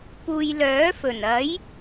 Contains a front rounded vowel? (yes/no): yes